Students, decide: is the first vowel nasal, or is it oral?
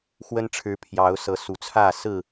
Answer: oral